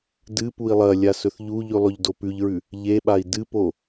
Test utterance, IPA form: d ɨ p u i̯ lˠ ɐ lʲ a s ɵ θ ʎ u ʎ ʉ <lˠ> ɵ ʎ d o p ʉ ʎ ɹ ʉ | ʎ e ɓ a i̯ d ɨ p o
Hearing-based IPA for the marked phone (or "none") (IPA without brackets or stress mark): lˠ